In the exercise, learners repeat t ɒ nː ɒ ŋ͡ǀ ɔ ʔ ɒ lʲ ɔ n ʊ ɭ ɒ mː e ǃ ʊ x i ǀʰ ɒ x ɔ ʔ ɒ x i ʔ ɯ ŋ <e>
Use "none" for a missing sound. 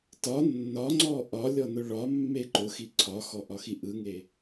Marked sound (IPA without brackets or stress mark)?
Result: e